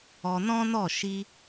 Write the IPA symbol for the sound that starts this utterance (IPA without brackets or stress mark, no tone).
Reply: ɔ